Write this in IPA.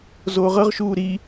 zoːʁɤʁʃuː ɾi

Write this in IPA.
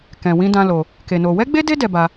kɛ̃˧wĩ˦dã˦lo˧ | ke˧no˧ wɛ˦ɡ͡be˦de˦ dɛ˧ba˧

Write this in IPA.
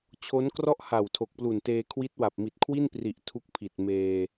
t͡ɕʰo˦˥nkrɔ˥˩ʔha˨˩w tʰo˨˩k̚plu˨˩nteː˧kʰwi˦˥t̚ wa˨˩p̚mi˨˩t̚kʰwi˥˩npri˨˩ʔ tʰu˦˥k̚pʰi˨˩t̚meː˧

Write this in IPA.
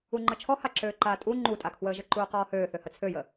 uŋ͡ǃət͡ʃʰɔ haǁøːǃaːtʼu ŋ͡ǃutʼakʰwəːʒə ǃuːqɔːhøː θøhət͡sʰøjə

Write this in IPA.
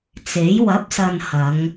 t͡se˨˥j wɐ˨˥p̚sɐ˨n hɐ˨˧ŋ

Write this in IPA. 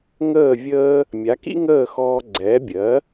ŋəː˥˩ vʲəː˥ | mʲa˩˥kḭ˥ŋəː˥˩ xɔː˧ɡ͡ǀɛː˩˥bʲɜ˩˥

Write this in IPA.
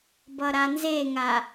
bʌɾanzeŋa

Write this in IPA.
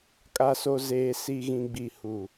kʼa˨so˨ zeː˨si˨ɣĩ˨ɡ͡bi˨ hu˨

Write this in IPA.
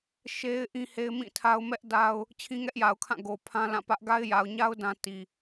ʃe˦ɪ̯ ʔĩ˦he˦ɪ̯mĩ˦˨tʰa˦ʊ̯ mɛ˦ʔ da˦ʊ̯ | t͡ɕʰĩ˦ŋɛ˦ʔja˨ʊ̯kʰã˦˨ ɡo˨pʰã˦ lã˦˨pä˦ʔ ɡa˦ɪ̯ja˨ʊ̯ɲa˦ʊ̯ dã˦ti˨

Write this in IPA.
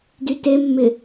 dytemːɪ

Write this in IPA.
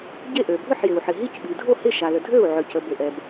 ɟe˥˩ʔø˩ bʱʏ˥˩ħjɪ˩u̯ ħɪ˩ɦi˥˩cɓi˩dʱo˥˩ hɪ˥˩ʃa˩lə˩dʱø˥˩u̯ ʕø˩cə˩bʏ˩ ʔɛ˩b

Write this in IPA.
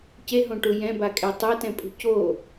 ceɦõʈu jɛ̃bakʼe tˤetɛ̃pʼṳ co

